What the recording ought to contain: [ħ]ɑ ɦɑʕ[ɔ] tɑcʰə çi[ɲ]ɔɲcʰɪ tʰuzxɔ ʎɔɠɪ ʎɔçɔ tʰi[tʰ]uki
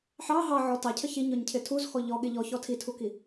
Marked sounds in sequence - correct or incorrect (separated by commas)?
correct, correct, correct, correct